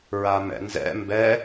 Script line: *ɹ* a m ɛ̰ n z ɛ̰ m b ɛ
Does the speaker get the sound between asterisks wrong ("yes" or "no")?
no